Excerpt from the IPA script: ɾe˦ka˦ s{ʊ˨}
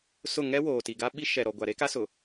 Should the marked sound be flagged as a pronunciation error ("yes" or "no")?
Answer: no